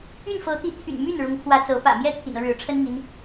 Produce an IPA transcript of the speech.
y˥˩ n f ɤ˧˥ t̪ i˧˥ t̪ʰ y̰˨˩ n m y˥˩ n ɻ ʊ˧˥ ŋ kʰ w ä˧˥ t͡s ɤ˧˥ p ä̰˨˩ m j ɛ˥ t̪ʰ ḭ˨˩ n ɤ˦ ɻ ɻ̩˧˥ ʈ͡ʂʰ ə˥ n i˨ ŋ i˥ n

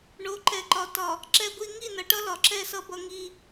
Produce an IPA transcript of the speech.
ɳ o˨˦ ǃ ɛ˨˦ ǃ ɒ˨ t ɒ˨ | ǁ ɛ˦ ɡʷ i˦ ŋ i˦˨ n ʌ˨ ʈ ʌ˦ l ɒ˨ ǁ ɛ˦˨ s ʌ˦ b ʌ˦ ŋ i˦

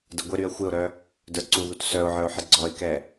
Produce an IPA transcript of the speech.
d ə ɡʷ ɪ ɾ y ə̯ xʷ ɪ ʊ̯ ɾ œ | d ə˞ ǀ u ð u t s œ ʊ̯ ʕ ə˞ ʊ̯ ħ ɪ ɡ͡ǀ ɔ ɪ̯ k ɛ

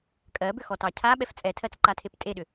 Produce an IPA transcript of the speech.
kʼ ɜ b ʏ x ɔ t ɑ cʰ a ɓ ɛ f t͡sʼ ɛ tʰ ɜ t͡s ǃ a tʰ e p tʼ e ɗ ʏ

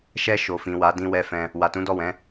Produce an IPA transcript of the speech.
ʃ ɛ˧ ʃ o˨ f ĩ˨ w a˨˦ d ĩ˧ w ɛ˧ f ɛ̃˧ | w a˨ t ũ˨˦ d ɔ˦˨ w ɛ̃˨˦

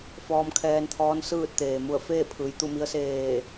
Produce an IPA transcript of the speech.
f ɔː˧ m kʰ ɛː˧ n t̪ʰ ɔː˧˥ n s ɯː˥˨ t̚ t̪ eː˩ m u˧˩ ə̯ f eː˥˨ pʰ ɯː˩ j t̪ u˥˨ m i˧˥ ə̯ s eː˧˩

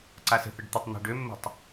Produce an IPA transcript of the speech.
ǀ a s ə̤ θ ə ɖ t̪ ə tˤ n̪ æ̤ ɖ ø mː ə̤ tˤ

